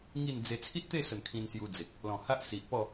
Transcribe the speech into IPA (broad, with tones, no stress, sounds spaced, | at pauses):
ŋ i˥˧ n d͡z e˧ t͡sʰ i˦ t̚ t̪ e˥˧ s ə˨˩ n kʰ ĩ˧ n s j u˧ d͡z e˨ k̚ | l ɔ̃˨˩ h a˦ ʔ s i˨ ʔ p ɔ˥˧